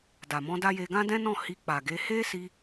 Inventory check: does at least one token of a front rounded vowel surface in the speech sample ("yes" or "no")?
no